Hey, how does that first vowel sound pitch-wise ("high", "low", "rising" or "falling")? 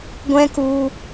high